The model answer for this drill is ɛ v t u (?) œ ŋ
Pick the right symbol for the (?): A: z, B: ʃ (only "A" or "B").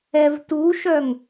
B